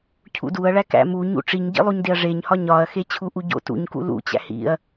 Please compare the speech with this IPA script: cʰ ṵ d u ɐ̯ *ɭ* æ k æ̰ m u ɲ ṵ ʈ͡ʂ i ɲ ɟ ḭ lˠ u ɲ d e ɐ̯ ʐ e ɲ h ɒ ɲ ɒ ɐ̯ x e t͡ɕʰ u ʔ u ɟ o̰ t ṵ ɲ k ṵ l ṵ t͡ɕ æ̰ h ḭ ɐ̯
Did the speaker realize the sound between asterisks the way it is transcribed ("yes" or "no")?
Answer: yes